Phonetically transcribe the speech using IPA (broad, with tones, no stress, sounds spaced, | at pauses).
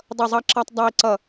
dˤ ʌ˧˩ zˤ ɑ˧ ǁ ɑ˧ tˤ dˤ æ˧ i̯ ǀ ʌ˧˩